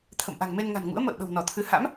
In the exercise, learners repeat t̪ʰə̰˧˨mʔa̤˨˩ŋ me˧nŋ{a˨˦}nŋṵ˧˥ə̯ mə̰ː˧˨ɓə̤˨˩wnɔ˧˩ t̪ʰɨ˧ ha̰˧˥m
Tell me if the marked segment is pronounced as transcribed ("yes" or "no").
no